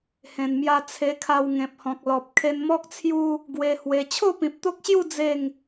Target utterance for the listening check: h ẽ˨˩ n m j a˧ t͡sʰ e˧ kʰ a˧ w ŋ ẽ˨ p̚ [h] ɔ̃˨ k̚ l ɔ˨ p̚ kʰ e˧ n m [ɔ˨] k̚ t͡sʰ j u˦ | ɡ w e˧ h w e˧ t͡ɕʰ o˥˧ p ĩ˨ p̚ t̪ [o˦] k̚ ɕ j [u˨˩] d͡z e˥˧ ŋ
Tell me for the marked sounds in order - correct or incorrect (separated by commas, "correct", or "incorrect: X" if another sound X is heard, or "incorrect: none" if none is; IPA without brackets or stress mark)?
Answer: correct, incorrect: ɔ˦, correct, incorrect: u˥˧